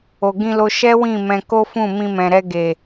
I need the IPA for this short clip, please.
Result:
o˨ ɡ ĩ˧ l o˧ ʃ ɛ˦ w ĩ˦˨ m ɛ̃˧ k o˦ f ũ˦˨ m ĩ˧ m ɛ̃˨ ɾ ɛ˧ ɡ e˨

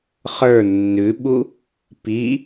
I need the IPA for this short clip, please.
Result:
χ ə˞ nː ʉ ɓ u | p i

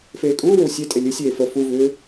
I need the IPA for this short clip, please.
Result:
f eː kʼ uː w ʏ w sʲ e tʼ e lʲ ɨ sʲ eː f ə f u v ʏː

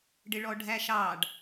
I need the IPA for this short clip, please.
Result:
ɖ ɪ ɭ ɔ ɖʱ æ ʃ ɑ ɖ

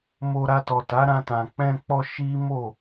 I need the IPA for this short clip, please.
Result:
m o˧ ɾ a˧ t ɔ˨ t a˨˦ ɾ ã˧ t ã˨ k͡p ɛ̃˧ k͡p ɔ˧ ʃ i˦ m o˦˨

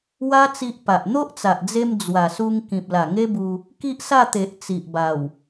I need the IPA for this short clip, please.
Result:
w a˦ t͡s i˦ ʔ p a˨ ʔ n̪ o˦ ʔ t͡s a˨ ʔ d͡z e˧ m d͡z w a˨˩ s u˧ ŋ k ĩ˨ p̚ l a˨˩ ŋ e˦ b u˧ | k i˦ ʔ s a˥˧ t̪ e˨ ʔ t͡s i˨ ʔ b a˨˩ w

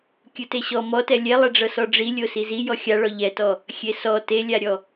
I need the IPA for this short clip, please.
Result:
kʲ ɯ t e ɕ ɔ m ɔ t ɛ lʲ ɛ lˠ ɛ ɖ͡ʐ ɤ s ɔ ɖ͡ʐ i lʲ o s i z i j ɔ xʲ a ɭ ɔ ʎ ɛ t ɔ | xʲ e s ɔ t e lʲ a ɾʲ ɔ

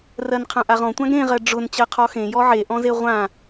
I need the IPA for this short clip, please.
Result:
r ɜ n qʰ ã ʔ a ʁ ɔ̃ tʷ ã ɡ ɾ ẽ ʁ ɜ ɖ͡ʐ ʊ n t͡ɕ ɜ qʰ ɔ x ẽ j ɔ ʕ e ʔ ɔ̃ z e ʁʷ ã

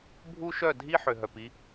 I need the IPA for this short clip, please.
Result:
bʱ u˦ ʃ œ˦˨ dʱ i˦ ħ ø˨ ɦ œ˨ p i˦

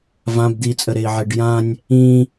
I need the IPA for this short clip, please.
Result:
v ã b d̪ i t͡sʼ ə ɾ e i̯ ʕ e ɖ j ã nʲ | ĩ

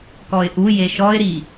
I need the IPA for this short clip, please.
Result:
k ɔ ɪ̯ ʔ u j e ʃ ɔ ɪ̯ ɾ i

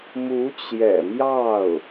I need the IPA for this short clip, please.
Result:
m u˧˥ t͡ɕ j ɛ̰˨˩ m j ɑ˥˩ ʊ̯

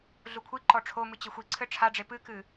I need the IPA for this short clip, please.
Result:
ɮ u kʷʰ i ǃ ɔ ʈ͡ʂʰ o m ɨ t͡ɕ ɘ xʷ i ǀʰ ɘ ʈ͡ʂʰ a ɖ͡ʐ e p ɨ k ɨ

